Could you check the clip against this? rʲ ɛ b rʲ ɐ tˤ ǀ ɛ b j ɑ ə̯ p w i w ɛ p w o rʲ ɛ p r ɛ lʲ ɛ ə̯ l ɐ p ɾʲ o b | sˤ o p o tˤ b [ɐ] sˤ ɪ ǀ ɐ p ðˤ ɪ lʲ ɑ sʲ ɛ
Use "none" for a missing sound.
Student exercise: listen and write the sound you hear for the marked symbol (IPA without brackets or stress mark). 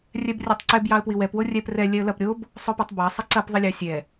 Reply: ɑ